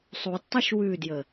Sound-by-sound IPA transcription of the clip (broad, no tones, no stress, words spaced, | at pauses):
sˤudtˤuʃ wʉdjə